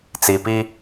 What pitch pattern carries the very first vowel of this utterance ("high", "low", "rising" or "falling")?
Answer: low